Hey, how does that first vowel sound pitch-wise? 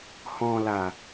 low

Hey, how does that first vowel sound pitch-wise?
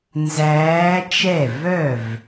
rising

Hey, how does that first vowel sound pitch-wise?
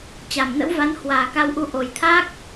low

